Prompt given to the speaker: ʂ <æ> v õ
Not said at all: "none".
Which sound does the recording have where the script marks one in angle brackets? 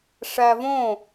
æ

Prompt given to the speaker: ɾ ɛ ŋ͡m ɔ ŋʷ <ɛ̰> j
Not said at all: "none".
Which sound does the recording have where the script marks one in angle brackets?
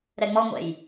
ɛ̰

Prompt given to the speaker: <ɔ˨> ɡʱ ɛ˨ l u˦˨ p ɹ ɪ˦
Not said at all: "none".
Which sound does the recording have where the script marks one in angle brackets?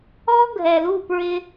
ɔ˦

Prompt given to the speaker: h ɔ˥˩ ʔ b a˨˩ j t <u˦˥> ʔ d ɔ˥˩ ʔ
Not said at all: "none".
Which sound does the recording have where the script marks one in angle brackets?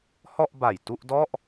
u˥˩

